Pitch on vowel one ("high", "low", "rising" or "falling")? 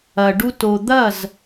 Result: low